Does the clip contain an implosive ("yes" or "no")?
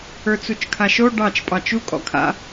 no